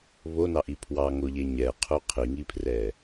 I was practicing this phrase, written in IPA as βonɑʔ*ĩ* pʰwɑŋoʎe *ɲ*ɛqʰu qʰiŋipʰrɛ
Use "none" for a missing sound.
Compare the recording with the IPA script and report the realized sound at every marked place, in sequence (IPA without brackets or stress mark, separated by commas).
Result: i, ɲ